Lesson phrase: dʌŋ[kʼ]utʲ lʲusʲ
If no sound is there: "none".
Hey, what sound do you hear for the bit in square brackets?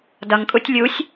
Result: kʼ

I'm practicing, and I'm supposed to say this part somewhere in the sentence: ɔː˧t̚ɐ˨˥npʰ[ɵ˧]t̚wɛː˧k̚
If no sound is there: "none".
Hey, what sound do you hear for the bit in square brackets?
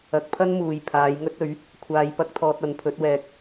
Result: ɵ˨˥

